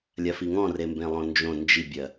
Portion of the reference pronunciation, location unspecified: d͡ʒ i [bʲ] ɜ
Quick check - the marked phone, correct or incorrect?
correct